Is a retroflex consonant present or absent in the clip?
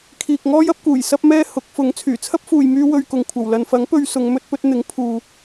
absent